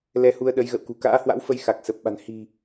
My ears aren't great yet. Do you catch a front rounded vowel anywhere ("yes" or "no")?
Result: no